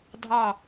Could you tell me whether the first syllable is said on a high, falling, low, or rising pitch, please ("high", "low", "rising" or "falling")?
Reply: low